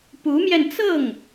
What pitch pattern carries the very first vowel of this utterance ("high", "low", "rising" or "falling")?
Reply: rising